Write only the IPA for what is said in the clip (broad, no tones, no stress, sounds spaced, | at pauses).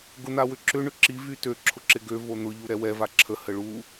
ɡ ʊ n̪ a w ʏ ǁ ʏ ɳ ʏ ǁ i v y t ø ǁʰ ʊ ǁ ɪ ɡ ø v o n̪ ʊ ʎ u ɾ ɛ w ɛ v a ǁʰ ə h ə ɭ u